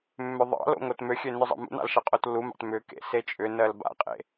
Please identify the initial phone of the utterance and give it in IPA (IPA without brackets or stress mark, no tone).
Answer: mː